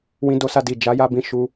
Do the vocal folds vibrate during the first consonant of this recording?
yes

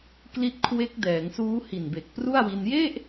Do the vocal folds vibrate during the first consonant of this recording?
no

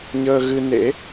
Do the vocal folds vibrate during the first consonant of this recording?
yes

